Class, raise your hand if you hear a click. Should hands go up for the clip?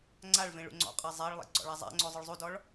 yes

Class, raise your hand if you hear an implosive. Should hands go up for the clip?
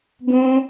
no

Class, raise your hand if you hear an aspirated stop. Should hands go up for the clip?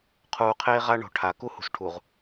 yes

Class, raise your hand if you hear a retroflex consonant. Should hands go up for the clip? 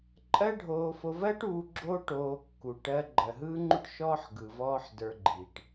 yes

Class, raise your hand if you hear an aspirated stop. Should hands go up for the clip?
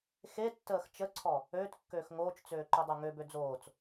yes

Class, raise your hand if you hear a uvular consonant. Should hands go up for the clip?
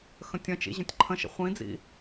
yes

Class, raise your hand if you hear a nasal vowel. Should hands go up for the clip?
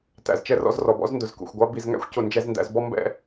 no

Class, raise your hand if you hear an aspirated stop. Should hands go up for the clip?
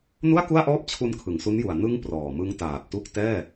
yes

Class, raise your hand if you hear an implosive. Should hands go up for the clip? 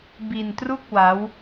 no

